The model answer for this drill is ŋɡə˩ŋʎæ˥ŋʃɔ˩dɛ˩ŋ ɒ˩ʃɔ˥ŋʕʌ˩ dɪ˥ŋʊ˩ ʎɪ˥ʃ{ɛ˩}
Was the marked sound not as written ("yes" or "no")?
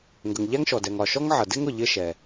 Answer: no